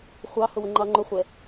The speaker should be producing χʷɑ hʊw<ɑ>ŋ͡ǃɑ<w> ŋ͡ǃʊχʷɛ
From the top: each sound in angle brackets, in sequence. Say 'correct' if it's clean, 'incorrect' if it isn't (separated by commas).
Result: incorrect, incorrect